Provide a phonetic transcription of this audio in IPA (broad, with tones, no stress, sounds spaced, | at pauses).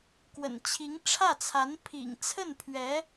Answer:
k w ə̰˨˩ n t͡ɕʰ i˧˥ ŋ ʈ͡ʂʰ ä˥˩ t͡sʰ a˧˥ n pʰ ḭ˨˩ ŋ t͡sʰ ə˥˩ n pʰ ɥ ɛ˧˥